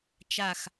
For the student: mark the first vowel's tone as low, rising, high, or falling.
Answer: falling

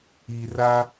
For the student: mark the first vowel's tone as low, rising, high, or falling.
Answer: low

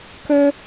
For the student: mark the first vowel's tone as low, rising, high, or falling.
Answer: high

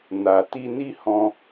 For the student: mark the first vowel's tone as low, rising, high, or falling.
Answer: low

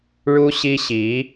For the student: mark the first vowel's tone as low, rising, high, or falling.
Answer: high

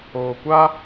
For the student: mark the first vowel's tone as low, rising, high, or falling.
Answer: low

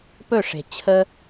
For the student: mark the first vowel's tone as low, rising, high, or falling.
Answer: falling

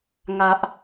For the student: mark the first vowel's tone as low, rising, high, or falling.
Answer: low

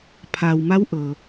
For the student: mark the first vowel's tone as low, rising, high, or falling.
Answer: low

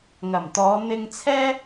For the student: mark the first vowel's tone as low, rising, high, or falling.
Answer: low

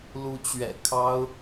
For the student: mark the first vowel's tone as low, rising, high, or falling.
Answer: rising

